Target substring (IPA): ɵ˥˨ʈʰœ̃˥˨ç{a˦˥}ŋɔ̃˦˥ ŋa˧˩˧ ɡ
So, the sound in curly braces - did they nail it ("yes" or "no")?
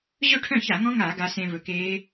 no